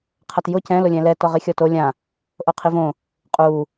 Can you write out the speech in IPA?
qʰ a t j ʊ c ɛ̃ l ʊ lʲ ɛ̃ l ɛ t ɔ ʁ i xʲ ɔ t o lʲ ã | ʔ o qʰ i v õ | qʼ u

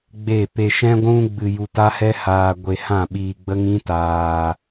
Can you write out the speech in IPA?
ɡ͡b e˦˨ p e˧ ʃ ɛ̃˦ ɡʷ ũ˦ ɡ͡b ɨ˧ j u˧ t a˦ h ɛ˦ h aː˧ ɡʷ e˧ h ã˦˨ ɓ iː˧ ɡ͡b ə˦ ŋ ĩ˦ t aː˧

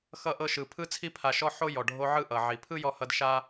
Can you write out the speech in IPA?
x ʌ˧ ʔ ɤ˧ ʃ ɯ˨ pʰ ɯ˧ t͡sʰ i˧ pʰ a˨ ʃ ɔ˧ ħ o˦ j ɔ˨ ɖʱ o˧ ʕ ɯ˦ ʔ ʌ˨ ʕ i˨ pʰ ɯ˦ j ɔ˦ h ʌ˦ d ʃ a˦

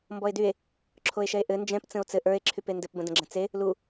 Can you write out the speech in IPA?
m b ɔ e̯ d y e̯ | ǁʰ o e̯ ʃ ɛ e̯ ʔ ɘ n d͡ʒ ɛ̃ p t͡s ə̃ o̯ t͡s ɘ ʔ ə˞ e̯ ǁʰ y p e n d ɘ p b ə̃ d ə̃ ɡ͡ǁ ə̃ t͡s e | l u

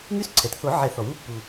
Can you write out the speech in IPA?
ŋ y˧˥ s ǀʰ ɛ˩ t θ o˨˩˦ ʕ ɛ˨˩˦ θ ɔ˩ w u˧˥ pː u˩

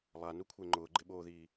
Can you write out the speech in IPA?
lˠ a n u kʷʰ e ŋ͡ǃ ʊː ɡ͡ǃ ɪ ɓ oː ð iː

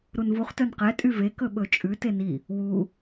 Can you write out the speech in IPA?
ɾ u n v u χ t œ n q ɛ tʼ y v e k ɵ ɓ ɵ t͡ʃʼ ʉ t e n i | w u

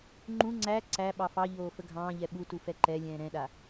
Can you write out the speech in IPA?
ŋ͡ǃ ũ ŋ͡ǀ æ ǀ æ ɓ ɑ f ɑ ʎ oː f ə ɡʱ ɑ̃ː ʎ ɛ ɓ u t u f ɛ ǃ ɛ lʲ ɛ̃ː ɾ ɛ̃ ɗ a

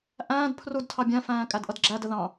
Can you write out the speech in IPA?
ʔ æ̃ː d pʰ r u d tʰ ɑ bʲ æ̃ f æ̃ː kʼ æ d ʔ ʌ d ɡ͡ǁ æ d ə ð ɑ̃

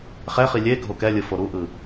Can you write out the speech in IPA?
χ ɛ χ i lʲ e ɡʱ o k ɛ lʲ ɯ f o ɾ u ʔ ɯ

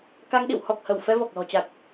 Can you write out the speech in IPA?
k a˧ ŋ ɗ ḭ˧˨ w h ɔ˨˩ k̚ h ə˧˩ w f ɛ˧ v ɔ˨˩ k̚ l ɔ̤˨˩ t͡ɕ a˨˩ k̚

